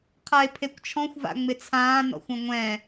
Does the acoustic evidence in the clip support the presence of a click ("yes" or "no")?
no